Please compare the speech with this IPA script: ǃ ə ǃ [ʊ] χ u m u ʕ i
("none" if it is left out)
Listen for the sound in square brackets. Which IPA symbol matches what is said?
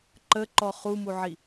ɔ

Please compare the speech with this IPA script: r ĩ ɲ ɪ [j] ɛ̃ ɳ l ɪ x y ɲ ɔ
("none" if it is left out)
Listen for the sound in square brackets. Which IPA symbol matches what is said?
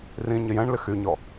j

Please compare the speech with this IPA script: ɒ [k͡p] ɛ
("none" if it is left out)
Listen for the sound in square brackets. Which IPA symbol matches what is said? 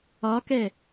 k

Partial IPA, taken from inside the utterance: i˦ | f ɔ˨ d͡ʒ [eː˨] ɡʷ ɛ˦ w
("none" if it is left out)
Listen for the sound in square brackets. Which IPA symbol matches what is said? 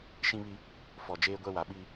eː˦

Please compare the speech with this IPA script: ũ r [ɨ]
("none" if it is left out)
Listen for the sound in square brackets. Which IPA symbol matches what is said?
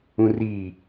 i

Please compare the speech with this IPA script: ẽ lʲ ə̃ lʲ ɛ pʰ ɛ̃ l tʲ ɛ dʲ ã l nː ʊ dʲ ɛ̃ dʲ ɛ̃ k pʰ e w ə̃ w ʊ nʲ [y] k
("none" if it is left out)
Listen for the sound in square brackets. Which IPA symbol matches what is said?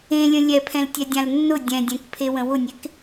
e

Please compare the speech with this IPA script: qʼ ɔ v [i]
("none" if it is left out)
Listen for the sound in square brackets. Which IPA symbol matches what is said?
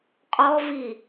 i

